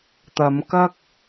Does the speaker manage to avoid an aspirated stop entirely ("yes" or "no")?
yes